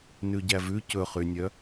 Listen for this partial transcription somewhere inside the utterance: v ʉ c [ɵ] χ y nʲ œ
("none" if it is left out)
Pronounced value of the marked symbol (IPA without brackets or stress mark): ɵ